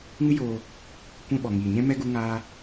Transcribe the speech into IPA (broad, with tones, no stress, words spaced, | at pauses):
ŋɨ˦joː˧ | kʷɛ̃˧ ɓɔ˨ŋiː˨ɲɛ̃˦ mɛ˦ ɡu˦ ŋaː˦